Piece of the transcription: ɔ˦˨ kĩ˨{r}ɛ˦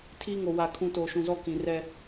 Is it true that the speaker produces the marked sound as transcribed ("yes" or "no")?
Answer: yes